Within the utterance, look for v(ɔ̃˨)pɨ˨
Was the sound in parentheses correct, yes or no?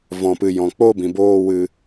yes